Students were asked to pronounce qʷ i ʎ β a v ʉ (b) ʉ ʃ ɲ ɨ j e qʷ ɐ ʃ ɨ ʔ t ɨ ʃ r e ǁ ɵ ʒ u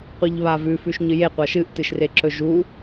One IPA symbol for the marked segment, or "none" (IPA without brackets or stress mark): f